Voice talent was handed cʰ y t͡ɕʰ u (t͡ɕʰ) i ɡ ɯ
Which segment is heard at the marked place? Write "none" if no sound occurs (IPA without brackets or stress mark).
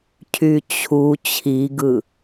t͡ɕʰ